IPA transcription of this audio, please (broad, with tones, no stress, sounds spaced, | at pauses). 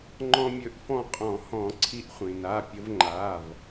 ŋ͡ǃ ɔ̃˧ mʲ ɵ˨˥ ʔ f ɔ̃˧ qʼ ɔ̃˨˩˦ h ɔ̃˨˩˦ ǀʰ i˧ ʔ χʷ ĩ˩ n a˩˧˩ pʲ ə˧ v ŋ͡ǃ a˩˧˩ v